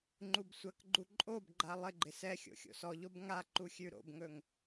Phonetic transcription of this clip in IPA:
ŋ͡ǃubsʷɐkɡ͡ǃu ǃʼobɡ͡ǃa lˠɪɡ͡ǃɪ sɛxʲo̰ xʲo̰sɔʎob ŋa ǃuxʲʉɾo̰bŋɵŋ

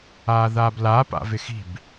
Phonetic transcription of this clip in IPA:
aːðaːblaːpa̰ vɪxi̤b

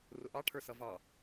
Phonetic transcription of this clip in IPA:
rʊʔɑʈʰə˞ sʌvɑ

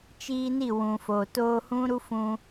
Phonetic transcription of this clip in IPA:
t͡ʃiː˧ni˦˨wũ˨fo˨ toː˧hũ˦ ɾu˦fũ˧

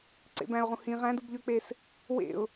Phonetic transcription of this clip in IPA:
ǀḛbæ̃ʊ̯ʁũ hĩ ʁæ̃dubʎøk͡pes | wḛʊ̯

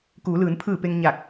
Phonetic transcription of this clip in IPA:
kuː˩˧lɯː˩˧n pʰɯː˧˩ pe˧ŋɲa˧˩k̚

